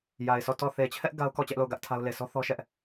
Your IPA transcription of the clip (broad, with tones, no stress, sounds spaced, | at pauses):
j a˨ ɪ̯ sʰ ɔ˦˨ t ɔ˦˨ θ e˨ t͡ɕʰ ɛ˦ ʔ ɡ a˦ ʊ̯ k ɔ˦˨ t͡ɕ ɛ˦ ʔ l o˦˨ ʊ̯ ɡ ä˦ ʔ tʰ a˦ ʊ̯ l e˨ s ɔ˦ θ ɔ˦ ʃ ɛ˦ ʔ